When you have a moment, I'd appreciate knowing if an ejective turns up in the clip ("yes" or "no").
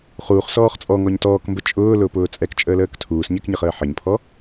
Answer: yes